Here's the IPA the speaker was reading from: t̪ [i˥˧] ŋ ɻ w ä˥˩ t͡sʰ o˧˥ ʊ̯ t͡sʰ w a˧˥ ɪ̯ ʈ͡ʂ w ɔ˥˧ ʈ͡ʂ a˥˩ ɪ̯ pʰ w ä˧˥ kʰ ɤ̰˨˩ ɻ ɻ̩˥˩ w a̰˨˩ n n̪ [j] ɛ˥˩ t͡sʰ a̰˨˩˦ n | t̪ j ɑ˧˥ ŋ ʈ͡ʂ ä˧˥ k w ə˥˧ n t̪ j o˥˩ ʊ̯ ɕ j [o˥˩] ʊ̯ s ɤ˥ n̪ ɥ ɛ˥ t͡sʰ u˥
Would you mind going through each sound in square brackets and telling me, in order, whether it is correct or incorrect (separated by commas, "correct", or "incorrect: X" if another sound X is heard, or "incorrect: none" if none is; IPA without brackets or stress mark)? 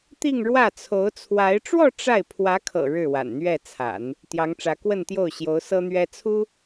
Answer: correct, incorrect: ɥ, incorrect: o˧˥